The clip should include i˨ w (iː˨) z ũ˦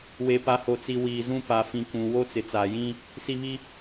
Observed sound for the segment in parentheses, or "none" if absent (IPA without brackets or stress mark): iː˨